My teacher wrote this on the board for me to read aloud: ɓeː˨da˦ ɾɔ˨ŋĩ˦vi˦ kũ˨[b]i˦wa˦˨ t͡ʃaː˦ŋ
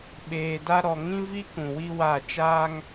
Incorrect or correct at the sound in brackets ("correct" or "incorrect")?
incorrect